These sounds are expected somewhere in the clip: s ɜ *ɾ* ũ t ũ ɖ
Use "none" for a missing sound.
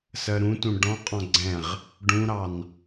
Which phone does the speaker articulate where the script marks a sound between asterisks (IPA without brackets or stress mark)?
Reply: ɾ